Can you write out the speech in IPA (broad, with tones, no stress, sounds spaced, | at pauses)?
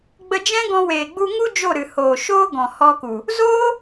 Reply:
ɡ͡b ə˧ d͡ʒ ɛ̃˦ ɡ ɔ̃˧ w eː˨ ɡ͡b u˧ ŋ u˦ d͡ʒ o˦˨ ɾ ɨ˨ h oː˨ ʃ oː˦ ɡ ɔ̃˨ h ɔ˧ k u˨ | z oː˦